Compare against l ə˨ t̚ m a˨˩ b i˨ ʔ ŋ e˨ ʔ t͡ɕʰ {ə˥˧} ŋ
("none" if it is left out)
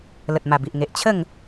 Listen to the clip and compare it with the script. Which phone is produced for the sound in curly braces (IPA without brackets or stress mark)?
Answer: ə˥˧